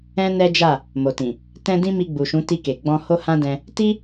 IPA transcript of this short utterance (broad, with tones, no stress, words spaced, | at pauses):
ɛ̃˦nɛ˦d͡ʒa˦˨ | mo˨tĩ˨ | tɛ̃˧ dĩ˦mi˧ɡ͡bu˨ʃũ˨˦ ti˧ke˨ ɡ͡bɔ̃˧ho˦hã˦dɛ̃˧ | ti˦